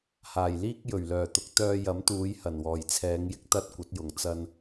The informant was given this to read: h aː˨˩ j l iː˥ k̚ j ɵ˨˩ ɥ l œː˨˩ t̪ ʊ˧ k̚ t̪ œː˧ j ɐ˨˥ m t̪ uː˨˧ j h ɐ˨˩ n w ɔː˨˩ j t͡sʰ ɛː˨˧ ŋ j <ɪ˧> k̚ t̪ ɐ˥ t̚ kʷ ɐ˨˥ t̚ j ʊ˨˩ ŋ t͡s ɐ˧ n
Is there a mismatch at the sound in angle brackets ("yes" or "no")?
no